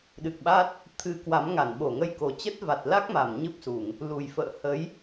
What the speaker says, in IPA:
ɗ ɨ˨˩ k̚ ɓ a˦˥ t̚ | t̪ʰ ɨ˨˦ k w a˨˦ m ŋ a˧˩ n ɓ o˧˩ ŋ ə˧ j k o˨˩ t͡ɕ ə˦˥ t̚ v a˨˩ t̚ l a˦˥ k̚ m a˧˩ m ɲ ɨ˦˥ p̚ s u˧˩˨ ŋ | l u˨˩ j f ə̰ː˧˨ h ə˨˦ j

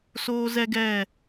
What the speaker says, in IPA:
s oː˧ z ɛ˧ ɡ ɛ˦˨

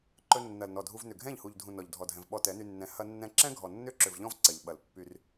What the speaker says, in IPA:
ǃ ɵ˧ nː ɐ˨ l n ɔ˨ dʱ u˧ v n ʏ˨ ɡʱ ɛ̃˦˨ ʎ h u˨ ʎ dʱ ũ˨ n ɔ˨ ʎ dʱ ɔ˨ dʱ ɛ̃˨ v ɓ ɔ˧ t ɛ˨˦ n y˧ nː ɛ̃˨˦ h ɐ˧ nː ɛ̃˧ ǁ ɛ̃˦ ɡʱ ɔ˨ nː ʏ˦ ǁ ʏ˨ v ʎ ɔ̃˦ v ǀ ɐ˨ ʎ ɓ ɐ˨ l pː y˧ r

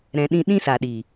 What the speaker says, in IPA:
ɾ ɛ̃˧ ɗ ĩ˦ ɗ ĩ˦ s a˨ ɗ i˨

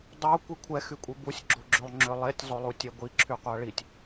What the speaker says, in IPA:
dˤ o kʷ i kʷʰ ɛ x y kʷʼ i b u sʲ ɡ͡ǁ o ɡ͡ǁ ø lˠ ŋ͡ǁ ø lˠ e tʲ zˤ o lˠ u tʲ ɛ ɡʷ i ǁʰ y qʷ a ɭ i tʲ

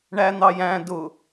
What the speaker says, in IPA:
ɳ æ n̪ ɑ j æ̃ d ʊ

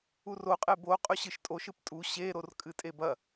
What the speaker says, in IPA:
u r o qʼ e b o qʼ ɵ ɕ ɨ ʃ tʼ o ʃ ɨ p tʼ u ɕ e ɾ o r kʼ ɨ tʼ e b ɐ

